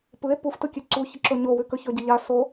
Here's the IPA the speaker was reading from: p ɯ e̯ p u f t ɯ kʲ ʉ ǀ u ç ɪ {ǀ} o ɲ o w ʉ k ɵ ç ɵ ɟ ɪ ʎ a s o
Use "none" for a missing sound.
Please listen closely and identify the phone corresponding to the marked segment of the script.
ǁ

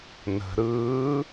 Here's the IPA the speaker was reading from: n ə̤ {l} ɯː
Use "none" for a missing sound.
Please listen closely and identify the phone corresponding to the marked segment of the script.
ɾ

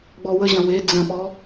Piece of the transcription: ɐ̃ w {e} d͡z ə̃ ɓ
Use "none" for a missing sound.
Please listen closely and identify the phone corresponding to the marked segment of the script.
e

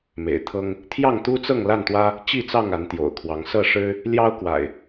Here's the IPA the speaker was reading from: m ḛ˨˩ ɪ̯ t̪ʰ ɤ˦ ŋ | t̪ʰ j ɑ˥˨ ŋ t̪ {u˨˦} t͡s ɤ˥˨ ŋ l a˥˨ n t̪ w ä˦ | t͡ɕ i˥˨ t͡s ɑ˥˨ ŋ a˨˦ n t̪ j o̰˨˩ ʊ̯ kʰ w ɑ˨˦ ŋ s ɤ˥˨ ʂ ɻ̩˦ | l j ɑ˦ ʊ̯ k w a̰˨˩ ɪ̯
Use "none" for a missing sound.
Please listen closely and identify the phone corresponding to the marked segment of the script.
u˦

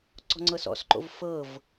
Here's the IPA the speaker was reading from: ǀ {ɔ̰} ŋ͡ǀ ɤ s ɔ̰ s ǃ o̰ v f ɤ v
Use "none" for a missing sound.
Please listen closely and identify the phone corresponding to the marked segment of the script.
ɔ̤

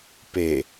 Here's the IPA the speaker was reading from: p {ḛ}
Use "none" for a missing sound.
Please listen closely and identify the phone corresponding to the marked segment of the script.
e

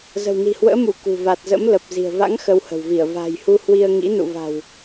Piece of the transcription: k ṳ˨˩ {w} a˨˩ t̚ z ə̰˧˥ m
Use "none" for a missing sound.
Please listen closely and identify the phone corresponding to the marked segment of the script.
v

